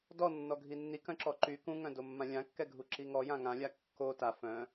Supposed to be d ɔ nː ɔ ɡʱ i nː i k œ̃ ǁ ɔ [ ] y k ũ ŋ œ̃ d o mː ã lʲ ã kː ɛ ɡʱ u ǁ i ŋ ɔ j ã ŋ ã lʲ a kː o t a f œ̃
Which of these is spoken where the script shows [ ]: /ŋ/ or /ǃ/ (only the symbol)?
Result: ǃ